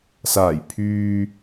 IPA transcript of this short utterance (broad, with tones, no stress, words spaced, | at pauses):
saː˨˩j pʰyː˨